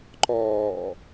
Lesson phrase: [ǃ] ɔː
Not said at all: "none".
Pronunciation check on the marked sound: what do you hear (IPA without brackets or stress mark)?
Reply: ǃ